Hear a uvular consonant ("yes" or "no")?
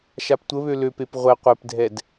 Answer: yes